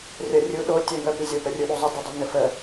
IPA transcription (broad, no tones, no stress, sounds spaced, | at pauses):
rʲ ʌ rʲ u ɗ o tʲ ə ŋ ə p i zʲ o p ə rʲ u ɗ u zˤ ə d i dˤ o ŋ ɘ f ə